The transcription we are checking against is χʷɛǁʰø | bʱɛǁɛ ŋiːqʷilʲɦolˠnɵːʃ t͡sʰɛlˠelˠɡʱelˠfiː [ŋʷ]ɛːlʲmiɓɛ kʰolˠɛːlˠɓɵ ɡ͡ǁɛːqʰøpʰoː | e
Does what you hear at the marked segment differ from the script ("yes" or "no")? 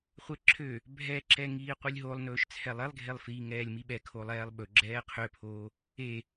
yes